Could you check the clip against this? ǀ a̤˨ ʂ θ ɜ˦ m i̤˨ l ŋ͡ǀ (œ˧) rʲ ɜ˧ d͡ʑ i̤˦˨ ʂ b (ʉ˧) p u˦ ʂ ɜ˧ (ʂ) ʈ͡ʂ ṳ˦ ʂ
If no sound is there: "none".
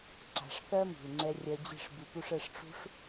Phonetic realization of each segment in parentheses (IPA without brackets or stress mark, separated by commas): ɛ˧, ʉ˧, ʂ